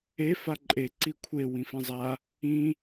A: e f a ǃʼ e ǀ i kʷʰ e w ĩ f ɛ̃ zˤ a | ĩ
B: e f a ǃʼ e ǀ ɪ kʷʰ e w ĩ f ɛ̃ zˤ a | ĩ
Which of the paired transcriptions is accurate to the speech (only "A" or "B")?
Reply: A